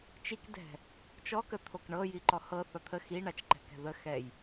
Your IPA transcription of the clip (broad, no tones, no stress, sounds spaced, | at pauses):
t͡ʃ i k d ɛ̤ | t͡ʃ ɔ k ə t̪ʰ o k ɳ ɤ j i ǃ ɔ h ɤ θ ɒ t̪ʰ ə x i ɳ a t͡ʃ ǃ ɛ̤ k ɛ̤ ð ə x ɛ j